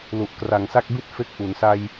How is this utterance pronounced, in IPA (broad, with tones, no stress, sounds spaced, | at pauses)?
l u˨˩ ʔ k r a˨˩ ŋ s a˥˩ k̚ b i˥˩ t̚ f e˦˥ k̚ ʔ u˩˦ n s a˧ j